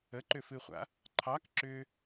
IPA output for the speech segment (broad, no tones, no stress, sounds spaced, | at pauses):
ə ǃ ʏ f ɨ χʷ a̰ | ǃʰ ɑ k ǁ ʏ